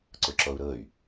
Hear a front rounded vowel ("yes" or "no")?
yes